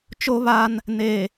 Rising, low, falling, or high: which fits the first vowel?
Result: high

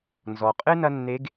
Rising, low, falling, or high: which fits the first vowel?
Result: low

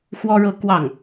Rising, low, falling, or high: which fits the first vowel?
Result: high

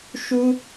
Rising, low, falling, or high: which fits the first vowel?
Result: high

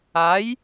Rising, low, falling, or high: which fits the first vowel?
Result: rising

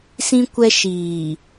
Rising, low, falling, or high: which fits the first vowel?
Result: high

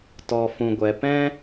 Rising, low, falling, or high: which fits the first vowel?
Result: low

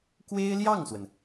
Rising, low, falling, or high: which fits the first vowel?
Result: high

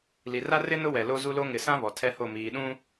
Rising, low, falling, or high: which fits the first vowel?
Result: low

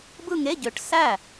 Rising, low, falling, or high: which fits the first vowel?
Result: falling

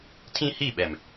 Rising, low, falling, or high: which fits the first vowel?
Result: high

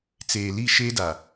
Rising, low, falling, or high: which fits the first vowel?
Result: low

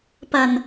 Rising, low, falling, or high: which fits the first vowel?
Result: low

